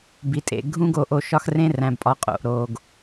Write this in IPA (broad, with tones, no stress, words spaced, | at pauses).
bi˨tʼḛ˨ɡʱũ˦ ɡo˨ʔo˨ ʃɒ˦xrẽ˦ræ̃˨bpʼɒ˨˦ qʼo̰˨ʔ ɾo˨ɡ